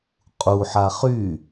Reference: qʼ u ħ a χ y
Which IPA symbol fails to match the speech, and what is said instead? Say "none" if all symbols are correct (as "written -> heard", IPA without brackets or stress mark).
none